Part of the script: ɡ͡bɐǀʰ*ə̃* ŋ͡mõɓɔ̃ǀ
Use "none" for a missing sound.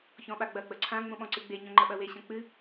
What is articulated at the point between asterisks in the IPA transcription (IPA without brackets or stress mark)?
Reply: ã